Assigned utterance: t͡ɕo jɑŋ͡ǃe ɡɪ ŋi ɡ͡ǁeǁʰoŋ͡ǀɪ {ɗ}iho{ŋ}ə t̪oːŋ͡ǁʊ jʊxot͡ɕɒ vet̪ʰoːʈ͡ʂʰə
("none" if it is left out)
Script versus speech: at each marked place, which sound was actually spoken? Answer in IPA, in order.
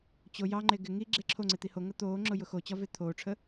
t̪, ŋ

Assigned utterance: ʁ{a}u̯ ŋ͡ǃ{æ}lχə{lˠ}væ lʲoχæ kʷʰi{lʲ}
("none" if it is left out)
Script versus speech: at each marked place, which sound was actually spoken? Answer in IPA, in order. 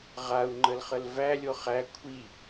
a, ə, l, none

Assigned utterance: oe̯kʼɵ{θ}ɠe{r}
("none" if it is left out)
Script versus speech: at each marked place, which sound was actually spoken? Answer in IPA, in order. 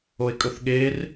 θ, r

